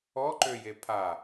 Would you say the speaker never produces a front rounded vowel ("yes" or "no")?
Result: no